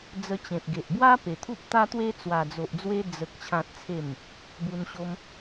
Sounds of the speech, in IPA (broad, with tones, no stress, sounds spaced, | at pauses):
d͡z ə˧ t͡ɕ ẽ˨ p̚ ɡ e˨ ʔ b w a˦ p e˨˩ t̪ʰ u˦ p̚ t̪ a˦ t̪ w e˦ t͡s w a˨˩ d͡z o˨ ʔ d͡z w e˧ d͡z ə˨ k̚ t͡ɕʰ ã˨ t̚ t͡sʰ e˨˩ m | b u˧ n ɕ o˦ m